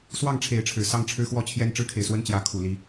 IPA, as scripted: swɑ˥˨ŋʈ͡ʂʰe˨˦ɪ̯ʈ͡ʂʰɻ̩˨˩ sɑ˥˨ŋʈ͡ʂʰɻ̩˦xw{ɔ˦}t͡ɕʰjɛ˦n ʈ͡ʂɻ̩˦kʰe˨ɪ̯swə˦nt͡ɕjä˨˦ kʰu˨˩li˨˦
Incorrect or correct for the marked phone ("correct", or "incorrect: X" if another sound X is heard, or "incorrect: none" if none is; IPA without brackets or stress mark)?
incorrect: ɔ˥˨